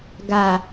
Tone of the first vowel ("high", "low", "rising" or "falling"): low